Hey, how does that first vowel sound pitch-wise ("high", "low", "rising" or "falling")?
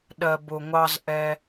low